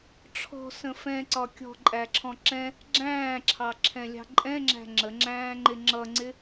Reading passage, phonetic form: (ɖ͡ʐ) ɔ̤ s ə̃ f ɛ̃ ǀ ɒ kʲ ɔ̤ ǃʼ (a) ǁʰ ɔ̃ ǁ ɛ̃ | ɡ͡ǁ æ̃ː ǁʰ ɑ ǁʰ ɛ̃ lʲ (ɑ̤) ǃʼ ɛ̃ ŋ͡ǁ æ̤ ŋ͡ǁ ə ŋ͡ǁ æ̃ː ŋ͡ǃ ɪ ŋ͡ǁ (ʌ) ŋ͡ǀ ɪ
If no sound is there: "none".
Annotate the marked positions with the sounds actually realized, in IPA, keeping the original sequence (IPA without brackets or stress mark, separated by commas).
ʈ͡ʂʰ, æ, ɑ̤, ʌ